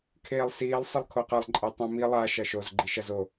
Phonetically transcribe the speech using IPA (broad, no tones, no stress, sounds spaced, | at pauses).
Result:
kʰ eː lˠ s iː lˠ sˤ ɨ lˠ kʰ o q ɐ lˠ ǃʼ e tˤ õ m i lˠ a ʃ ɐ ʃ o z ɡ͡ǃ i ʃ ɐ z o